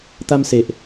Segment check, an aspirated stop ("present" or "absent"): absent